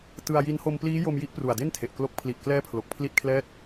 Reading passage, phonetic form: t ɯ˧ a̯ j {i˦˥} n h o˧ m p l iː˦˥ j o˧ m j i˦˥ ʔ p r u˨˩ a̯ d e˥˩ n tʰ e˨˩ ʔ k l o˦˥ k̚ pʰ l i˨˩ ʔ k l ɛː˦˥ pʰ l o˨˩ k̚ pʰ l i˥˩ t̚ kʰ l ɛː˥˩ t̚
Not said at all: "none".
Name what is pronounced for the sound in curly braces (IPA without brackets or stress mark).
i˦˥